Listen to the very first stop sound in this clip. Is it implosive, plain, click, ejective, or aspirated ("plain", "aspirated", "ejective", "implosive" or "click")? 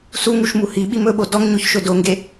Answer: implosive